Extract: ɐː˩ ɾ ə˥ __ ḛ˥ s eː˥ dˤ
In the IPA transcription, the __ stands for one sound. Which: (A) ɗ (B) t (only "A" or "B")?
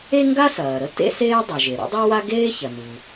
B